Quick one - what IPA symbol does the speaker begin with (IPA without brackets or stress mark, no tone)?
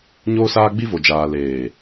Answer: ɲ